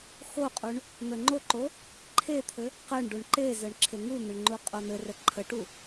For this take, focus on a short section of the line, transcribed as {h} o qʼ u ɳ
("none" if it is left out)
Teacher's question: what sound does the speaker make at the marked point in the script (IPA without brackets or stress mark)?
x